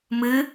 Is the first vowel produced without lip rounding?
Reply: yes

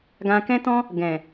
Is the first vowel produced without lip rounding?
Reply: yes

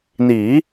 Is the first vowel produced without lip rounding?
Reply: yes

